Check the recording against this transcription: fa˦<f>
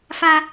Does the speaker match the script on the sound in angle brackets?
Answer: no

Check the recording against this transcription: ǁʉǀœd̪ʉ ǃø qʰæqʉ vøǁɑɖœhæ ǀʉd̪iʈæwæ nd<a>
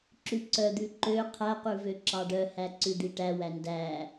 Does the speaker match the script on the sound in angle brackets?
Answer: no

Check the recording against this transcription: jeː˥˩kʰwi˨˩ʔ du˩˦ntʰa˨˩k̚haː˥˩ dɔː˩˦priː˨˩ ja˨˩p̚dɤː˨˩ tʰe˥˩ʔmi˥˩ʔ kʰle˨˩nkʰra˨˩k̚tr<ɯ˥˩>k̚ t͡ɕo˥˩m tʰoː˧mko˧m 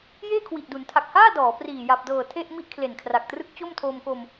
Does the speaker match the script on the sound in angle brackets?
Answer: no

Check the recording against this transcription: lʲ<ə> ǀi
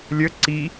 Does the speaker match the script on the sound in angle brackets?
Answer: yes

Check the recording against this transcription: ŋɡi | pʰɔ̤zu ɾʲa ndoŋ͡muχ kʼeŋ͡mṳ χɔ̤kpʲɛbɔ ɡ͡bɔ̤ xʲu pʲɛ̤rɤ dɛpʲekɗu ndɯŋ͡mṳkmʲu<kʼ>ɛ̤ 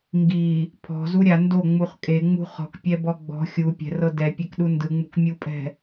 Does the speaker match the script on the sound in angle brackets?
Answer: no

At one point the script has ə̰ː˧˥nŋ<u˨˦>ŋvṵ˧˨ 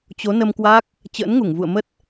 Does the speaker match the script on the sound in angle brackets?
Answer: no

